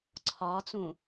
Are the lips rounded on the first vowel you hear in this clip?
yes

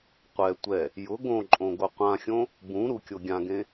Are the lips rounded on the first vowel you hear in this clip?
no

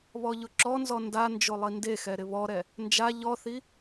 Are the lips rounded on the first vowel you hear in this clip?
yes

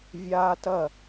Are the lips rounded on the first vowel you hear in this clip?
no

